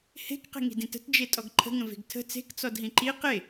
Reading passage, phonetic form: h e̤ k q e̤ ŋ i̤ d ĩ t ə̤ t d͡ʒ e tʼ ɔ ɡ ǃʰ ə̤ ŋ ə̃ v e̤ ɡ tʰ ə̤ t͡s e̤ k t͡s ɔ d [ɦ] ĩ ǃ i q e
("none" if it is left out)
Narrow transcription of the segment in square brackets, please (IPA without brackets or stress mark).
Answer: ɦ